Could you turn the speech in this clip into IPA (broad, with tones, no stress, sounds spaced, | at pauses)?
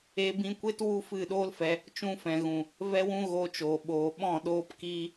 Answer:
e˧ b ĩ˧ kʷ e˦ t w u˦ f ɨ˦˨ ɗ oː˦ l f ɛ˧ | t͡ʃ ũ˧ f ɛ̃˨ ɣ ũ˨ | v ɛ˦ w ũ˦ ɣ oː˧ t͡ʃ oː˨ ɓ oː˨ ɓ ɔ̃˦˨ ɗ oː˦ p k iː˦